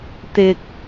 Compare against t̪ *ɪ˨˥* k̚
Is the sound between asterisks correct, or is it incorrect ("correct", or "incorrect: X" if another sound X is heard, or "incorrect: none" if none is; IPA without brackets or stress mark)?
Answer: incorrect: ɪ˨